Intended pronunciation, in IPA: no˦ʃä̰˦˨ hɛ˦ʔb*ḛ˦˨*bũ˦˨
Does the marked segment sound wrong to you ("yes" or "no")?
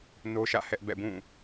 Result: yes